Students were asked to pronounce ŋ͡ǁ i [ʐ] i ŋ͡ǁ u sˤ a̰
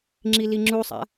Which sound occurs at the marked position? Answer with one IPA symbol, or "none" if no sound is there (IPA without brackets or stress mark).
l